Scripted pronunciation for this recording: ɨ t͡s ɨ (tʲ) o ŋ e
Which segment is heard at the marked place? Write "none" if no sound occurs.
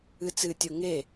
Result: tʲ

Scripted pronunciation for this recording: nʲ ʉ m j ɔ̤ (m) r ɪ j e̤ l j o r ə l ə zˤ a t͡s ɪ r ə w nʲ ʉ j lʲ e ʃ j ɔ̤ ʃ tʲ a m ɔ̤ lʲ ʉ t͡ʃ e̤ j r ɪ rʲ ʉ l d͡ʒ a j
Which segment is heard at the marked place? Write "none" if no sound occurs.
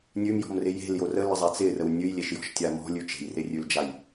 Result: m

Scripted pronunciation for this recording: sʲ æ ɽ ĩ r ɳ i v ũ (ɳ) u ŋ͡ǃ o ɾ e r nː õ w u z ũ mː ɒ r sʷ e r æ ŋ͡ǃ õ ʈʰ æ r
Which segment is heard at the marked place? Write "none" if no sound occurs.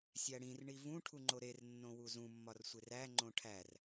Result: ʈʰ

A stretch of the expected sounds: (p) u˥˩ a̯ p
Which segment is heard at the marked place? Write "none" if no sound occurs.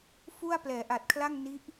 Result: f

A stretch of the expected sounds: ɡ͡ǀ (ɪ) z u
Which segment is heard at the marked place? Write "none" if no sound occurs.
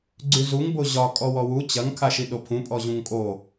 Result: y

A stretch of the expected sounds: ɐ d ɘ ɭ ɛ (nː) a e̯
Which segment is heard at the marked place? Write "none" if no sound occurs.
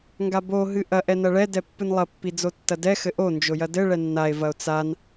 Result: nː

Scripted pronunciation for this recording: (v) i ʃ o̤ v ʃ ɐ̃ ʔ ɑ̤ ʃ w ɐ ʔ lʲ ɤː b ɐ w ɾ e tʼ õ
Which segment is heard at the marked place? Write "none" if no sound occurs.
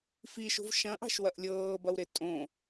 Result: f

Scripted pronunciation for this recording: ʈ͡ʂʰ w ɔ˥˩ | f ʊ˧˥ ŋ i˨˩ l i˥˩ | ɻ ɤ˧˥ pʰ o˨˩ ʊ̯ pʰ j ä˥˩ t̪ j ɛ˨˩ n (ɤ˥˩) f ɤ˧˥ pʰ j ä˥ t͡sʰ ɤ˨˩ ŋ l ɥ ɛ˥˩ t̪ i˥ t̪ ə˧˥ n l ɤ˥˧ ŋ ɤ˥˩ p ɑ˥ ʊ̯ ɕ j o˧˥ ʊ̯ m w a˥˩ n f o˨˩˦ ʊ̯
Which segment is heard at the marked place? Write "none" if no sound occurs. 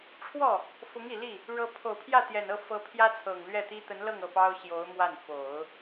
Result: ɤ˥˩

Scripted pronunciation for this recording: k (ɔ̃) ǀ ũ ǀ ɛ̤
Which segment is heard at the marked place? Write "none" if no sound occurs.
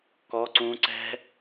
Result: ɔ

